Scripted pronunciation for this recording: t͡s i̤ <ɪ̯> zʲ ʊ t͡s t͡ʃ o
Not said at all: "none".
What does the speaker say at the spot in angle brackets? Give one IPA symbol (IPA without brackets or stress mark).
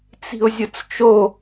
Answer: ʊ̯